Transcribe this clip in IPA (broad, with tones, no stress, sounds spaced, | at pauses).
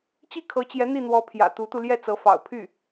t͡ɕ i˥˩ kʰ ɤ˧˥ t͡ɕ j ɛ˧˥ n̪ i˥˩ n̪ w ɔ˧˥ pʰ j ä̰˨˩ t̪ u˧˥ t̪ u˧ l j ɛ˥˩ t͡s ɤ˧˥ f ɑ̰˨˩ ʊ̯ pʰ y˥˩